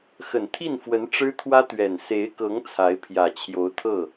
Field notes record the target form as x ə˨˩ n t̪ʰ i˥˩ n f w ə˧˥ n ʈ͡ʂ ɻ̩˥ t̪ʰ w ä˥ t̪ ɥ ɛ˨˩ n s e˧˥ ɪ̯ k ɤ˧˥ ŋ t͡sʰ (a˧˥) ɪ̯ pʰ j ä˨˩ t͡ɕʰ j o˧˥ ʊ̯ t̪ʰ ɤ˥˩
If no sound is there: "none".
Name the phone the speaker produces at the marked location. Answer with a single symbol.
a˧˥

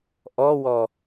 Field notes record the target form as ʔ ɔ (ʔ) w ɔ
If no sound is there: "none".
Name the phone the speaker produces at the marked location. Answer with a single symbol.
none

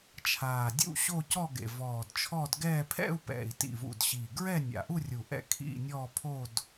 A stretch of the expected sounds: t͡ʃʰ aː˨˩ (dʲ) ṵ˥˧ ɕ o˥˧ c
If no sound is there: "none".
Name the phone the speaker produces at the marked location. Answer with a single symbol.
dʲ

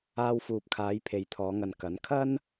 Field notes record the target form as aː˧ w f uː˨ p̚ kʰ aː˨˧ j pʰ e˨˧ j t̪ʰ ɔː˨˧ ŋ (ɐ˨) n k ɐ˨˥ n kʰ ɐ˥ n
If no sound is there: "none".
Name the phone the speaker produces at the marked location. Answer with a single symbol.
ɐ˨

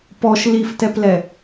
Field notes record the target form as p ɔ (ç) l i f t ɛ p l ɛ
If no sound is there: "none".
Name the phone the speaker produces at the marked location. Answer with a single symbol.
ʃ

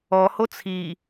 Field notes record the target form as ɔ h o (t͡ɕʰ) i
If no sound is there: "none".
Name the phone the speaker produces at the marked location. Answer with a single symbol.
t͡sʰ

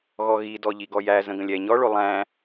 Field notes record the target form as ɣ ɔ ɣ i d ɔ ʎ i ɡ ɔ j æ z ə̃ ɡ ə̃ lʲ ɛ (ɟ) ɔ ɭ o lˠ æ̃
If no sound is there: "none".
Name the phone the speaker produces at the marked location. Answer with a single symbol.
ɲ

